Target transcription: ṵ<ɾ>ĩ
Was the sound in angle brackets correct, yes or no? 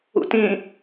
no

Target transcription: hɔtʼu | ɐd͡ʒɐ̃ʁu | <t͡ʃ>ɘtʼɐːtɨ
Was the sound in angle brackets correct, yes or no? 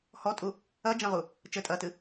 yes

